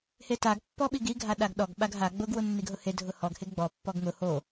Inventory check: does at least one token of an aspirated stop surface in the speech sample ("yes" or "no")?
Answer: no